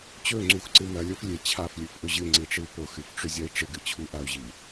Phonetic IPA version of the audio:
t͡ɕɵŋ͡ǀuxǀɨ mɐlʲof lʲe t͡ɕʰaflʲɨfʔɵ ʑɨŋ͡ǀiʈ͡ʂɨy̯ poxɨfʈ͡ʂɵzʲɐi̯ ʈ͡ʂɨɡɨt͡ɕʰu ʔau̯ʑi

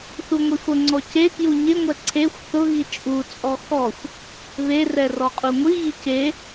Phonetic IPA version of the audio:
θuŋʷifʊŋ͡ǀɔ cekju ɲɪŋʷɛ ǀʰexʷ θʊɣi t͡ʃʼut͡sʼɔ xɔxʷ | βerɛ rɔqʼuŋʷiɣi ce

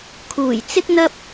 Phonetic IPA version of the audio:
kʰuː˨˩jt͡sɪ˥k̚n̪ɐ˥p̚

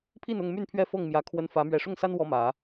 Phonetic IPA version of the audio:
pʰi˥˨nʊ˥˨ŋmy˥˨npʰɥɛ˥˨ fɤ˥˨ŋmjä˨˦ kʰwə˦n fä˨˦ mɥɛ˨˩ʂʊ˥˨ŋsa˦n wɔ˦mä˨˦

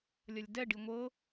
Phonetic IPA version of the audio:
lʲɐlʲdɛɖi ŋʷɤ

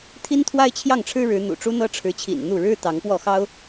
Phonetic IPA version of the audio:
t̪ʰi˥nt̪ʰwa˥ɪ̯t͡ɕʰjɑ˥˩ŋʈ͡ʂʰɻ̩˥ ɻɻ̩˧˥n̪ṵ˨˩ʈ͡ʂu˥n̪ɤ˥ ʈ͡ʂʰɻ̩˧˥t͡ɕʰḭ˨˩n n̪u˥˩ ɻɻ̩˥ t̪ɑ˧˥ŋpwɔ˥˩xɑ˥ʊ̯

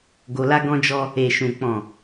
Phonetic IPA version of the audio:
ɡo˧la˦ ɡɔ̃˧d͡ʒɔ˧ | e˨ʃũ˨ k͡pɔ̃˨

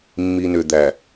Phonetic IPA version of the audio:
mːi˨nʏ˨d̪æ˨

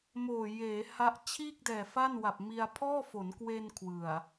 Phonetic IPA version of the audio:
moː˨˩ jeː˩˦ha˦˥ʔ t͡ɕʰiː˥˩k̚dɛː˨˩ fa˥˩n wa˨˩p̚mi˧a̯ pʰɔː˥˩fo˩˦n kwe˧n kʰwɯ˨˩a̯

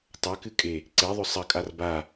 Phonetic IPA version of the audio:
tˤɐkɨkʼe | ǀeðˤɵ sˤɐkʼar ba

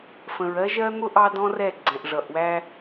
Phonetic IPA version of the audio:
fə̃˨ɹɜ˦ʒɜ˦n̪ʊ˦ ʔɑ˦dɔ̃˦rɛ˦˨ ɡ͡ǀɛ̃˨ʔʐʌ˨ʔwæ˦

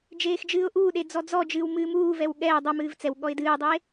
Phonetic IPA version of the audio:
d͡ʒeːxd͡ʒɨːʊ̯ʔuːɗe d͡zɔd͡zɔd͡ʒɨːw mɨːmuːvɛw ɠɛː dˤomɨːv t͡sɛw ɠɔɪ̯dɨːdˤe

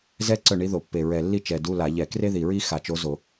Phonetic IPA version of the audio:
zɛ˥ ǀœ˥˨ɳi˧˥ðo˧˩˧pːe˨˩ ɹɛ˨˩lːi˥˨ t͡ʃɛ˨˩du˧˥˧ la˧˩˧ʎɛ˧˩˧ kre˥ði˨˩ɹi˥ xa˧˩˧t͡ʃo˧˥ zo˧˩˧

